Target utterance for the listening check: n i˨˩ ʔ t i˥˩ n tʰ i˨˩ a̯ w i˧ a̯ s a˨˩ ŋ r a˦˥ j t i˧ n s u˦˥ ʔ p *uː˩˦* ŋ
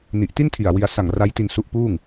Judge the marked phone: incorrect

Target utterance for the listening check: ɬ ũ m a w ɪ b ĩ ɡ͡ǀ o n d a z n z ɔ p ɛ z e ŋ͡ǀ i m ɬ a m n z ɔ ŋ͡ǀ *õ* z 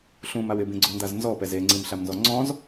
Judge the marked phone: incorrect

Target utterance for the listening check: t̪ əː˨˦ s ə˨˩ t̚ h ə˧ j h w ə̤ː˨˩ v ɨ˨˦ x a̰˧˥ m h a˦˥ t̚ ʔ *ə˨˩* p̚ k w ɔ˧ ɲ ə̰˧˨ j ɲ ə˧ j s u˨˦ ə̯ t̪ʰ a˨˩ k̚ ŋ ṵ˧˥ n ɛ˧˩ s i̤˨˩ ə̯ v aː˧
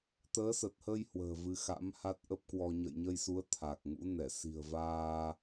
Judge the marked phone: incorrect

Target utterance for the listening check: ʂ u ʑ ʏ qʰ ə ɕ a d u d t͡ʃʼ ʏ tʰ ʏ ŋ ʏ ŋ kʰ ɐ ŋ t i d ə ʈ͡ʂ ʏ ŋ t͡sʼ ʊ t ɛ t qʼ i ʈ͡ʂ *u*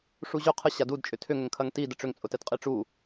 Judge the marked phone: correct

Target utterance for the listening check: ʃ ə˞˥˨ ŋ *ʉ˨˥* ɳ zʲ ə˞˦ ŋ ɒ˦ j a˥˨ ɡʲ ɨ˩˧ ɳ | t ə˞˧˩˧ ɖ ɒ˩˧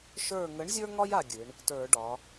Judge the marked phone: incorrect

